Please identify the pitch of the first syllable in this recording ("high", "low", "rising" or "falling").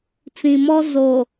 low